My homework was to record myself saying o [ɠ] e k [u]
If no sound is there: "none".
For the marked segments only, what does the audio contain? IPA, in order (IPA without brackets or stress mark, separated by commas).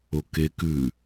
k, ʉ